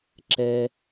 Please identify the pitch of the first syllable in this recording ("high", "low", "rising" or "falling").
low